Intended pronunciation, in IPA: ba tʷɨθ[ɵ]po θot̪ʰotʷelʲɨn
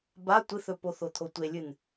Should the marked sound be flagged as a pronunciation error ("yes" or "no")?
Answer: no